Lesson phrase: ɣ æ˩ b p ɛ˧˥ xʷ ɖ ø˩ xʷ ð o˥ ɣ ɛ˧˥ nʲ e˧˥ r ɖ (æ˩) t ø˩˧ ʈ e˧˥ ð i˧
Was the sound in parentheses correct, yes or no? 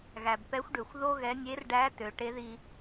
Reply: no